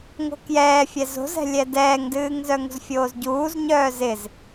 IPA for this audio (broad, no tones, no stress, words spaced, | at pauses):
ŋo̤kjɛːfʲɛ zo̤zɛ̤lʲɛ dɛːŋdɨːŋzœŋṳz fʲoːzɟuːzɲœː zɪz